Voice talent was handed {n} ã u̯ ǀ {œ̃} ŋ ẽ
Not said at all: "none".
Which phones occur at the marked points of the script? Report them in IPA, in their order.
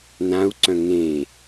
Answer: n, œ̃

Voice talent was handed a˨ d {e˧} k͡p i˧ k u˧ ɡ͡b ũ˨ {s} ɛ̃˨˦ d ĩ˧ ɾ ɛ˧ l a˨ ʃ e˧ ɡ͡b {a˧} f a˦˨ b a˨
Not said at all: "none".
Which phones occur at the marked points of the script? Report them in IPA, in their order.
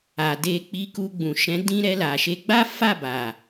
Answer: e˧, ʃ, a˦

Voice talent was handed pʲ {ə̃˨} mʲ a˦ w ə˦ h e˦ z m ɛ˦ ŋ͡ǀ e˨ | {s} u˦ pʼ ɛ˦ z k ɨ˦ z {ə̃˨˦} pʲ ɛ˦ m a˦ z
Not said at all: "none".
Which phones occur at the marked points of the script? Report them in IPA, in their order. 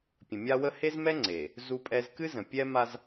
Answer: ə̃˨, z, ə̃˨

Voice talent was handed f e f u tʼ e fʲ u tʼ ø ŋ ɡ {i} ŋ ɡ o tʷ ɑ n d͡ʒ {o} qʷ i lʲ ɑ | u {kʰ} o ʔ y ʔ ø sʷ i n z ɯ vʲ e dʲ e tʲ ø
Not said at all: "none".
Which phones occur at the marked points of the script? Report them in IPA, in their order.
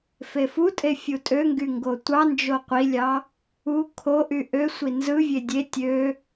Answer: y, o, kʰ

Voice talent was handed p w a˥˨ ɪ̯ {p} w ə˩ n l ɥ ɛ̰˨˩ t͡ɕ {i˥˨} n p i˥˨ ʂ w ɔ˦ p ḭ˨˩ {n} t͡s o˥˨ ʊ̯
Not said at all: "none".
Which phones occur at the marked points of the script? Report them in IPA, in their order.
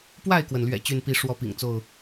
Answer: k, y˥˨, ŋ

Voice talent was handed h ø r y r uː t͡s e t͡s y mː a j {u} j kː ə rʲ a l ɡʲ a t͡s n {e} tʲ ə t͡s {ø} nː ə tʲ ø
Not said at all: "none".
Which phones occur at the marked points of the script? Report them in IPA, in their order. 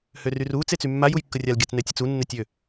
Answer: u, ɛ, u

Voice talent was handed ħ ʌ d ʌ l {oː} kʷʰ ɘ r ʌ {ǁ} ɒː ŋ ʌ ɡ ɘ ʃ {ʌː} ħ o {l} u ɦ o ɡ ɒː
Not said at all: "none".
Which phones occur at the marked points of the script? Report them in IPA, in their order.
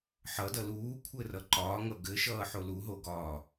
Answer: uː, ǃ, ʌː, l

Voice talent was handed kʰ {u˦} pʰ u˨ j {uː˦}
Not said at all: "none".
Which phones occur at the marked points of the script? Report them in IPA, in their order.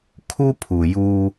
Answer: u˦, uː˦

